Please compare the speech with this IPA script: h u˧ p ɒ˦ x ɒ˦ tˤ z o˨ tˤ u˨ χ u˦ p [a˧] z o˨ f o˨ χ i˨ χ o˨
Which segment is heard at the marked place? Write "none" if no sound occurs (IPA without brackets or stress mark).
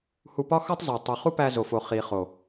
æ˧